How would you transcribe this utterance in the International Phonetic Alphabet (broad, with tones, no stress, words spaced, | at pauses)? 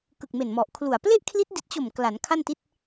kɯ˨˩k̚me˨˩nmɔ˨˩ʔ kʰlu˨˩a̯ ple˥˩ʔkʰli˦˥t̚di˨˩t̚t͡ɕo˨˩m kla˩˦nkʰa˥˩nti˥˩t̚